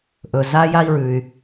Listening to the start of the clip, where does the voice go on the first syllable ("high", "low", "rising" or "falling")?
low